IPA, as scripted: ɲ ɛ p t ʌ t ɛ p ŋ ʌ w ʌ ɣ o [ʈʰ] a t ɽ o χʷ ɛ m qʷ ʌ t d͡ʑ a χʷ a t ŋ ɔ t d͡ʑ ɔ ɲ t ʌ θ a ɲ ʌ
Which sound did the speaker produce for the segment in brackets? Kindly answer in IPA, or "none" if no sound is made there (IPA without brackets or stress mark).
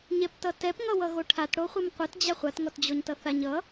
ʈʰ